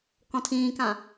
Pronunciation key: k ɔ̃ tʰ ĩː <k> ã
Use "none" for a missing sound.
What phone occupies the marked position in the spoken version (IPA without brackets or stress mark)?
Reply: k